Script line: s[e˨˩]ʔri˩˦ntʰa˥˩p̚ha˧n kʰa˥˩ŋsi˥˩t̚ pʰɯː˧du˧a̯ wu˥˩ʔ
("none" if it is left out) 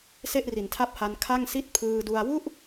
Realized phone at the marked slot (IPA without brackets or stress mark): e˥˩